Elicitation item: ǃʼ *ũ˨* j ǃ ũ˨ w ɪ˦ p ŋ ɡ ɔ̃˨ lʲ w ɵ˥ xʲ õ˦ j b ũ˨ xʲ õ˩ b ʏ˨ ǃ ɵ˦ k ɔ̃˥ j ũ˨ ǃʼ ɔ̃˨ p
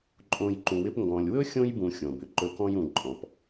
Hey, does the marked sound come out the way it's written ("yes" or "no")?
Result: no